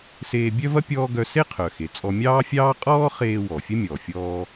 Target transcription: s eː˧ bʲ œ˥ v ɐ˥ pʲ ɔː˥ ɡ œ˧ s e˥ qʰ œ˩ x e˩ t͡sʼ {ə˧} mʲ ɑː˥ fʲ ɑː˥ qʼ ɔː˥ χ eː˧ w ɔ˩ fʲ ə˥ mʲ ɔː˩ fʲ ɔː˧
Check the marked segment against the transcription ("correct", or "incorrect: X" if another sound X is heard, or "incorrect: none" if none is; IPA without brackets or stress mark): incorrect: ɔ˧